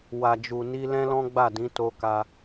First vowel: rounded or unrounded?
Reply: unrounded